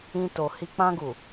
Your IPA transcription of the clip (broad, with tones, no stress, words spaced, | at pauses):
ĩ˧to˨hi˧ k͡pã˧ɡu˨